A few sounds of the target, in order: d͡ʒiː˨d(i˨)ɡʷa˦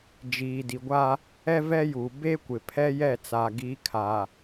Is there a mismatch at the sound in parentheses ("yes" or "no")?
no